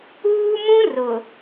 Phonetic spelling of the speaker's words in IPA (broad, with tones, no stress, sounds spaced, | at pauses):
uː˦ m ũ˦ r ʊ˨